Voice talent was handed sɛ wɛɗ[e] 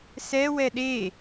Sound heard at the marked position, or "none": e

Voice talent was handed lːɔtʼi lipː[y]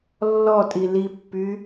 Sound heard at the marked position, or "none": y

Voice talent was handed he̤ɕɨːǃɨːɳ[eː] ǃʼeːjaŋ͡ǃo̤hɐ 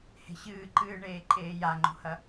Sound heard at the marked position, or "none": eː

